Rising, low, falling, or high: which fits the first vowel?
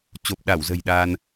low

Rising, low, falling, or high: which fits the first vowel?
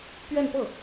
falling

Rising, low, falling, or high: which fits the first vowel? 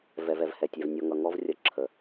low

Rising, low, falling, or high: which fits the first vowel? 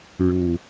low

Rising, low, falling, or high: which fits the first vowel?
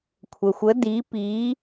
low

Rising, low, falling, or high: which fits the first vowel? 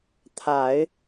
low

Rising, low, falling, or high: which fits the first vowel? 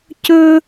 high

